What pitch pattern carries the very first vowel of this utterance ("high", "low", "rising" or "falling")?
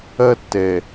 high